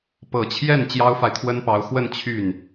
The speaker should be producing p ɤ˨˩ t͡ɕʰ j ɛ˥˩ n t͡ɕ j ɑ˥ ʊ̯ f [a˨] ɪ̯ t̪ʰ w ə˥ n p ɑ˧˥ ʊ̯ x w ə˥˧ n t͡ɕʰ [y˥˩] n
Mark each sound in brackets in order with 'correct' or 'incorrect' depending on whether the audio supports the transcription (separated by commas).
correct, correct